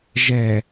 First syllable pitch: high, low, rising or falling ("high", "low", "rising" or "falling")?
low